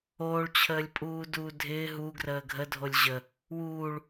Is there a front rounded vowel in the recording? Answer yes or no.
no